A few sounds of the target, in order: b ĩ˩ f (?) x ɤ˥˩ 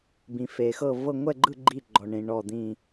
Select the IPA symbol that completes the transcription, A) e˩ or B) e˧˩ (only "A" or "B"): A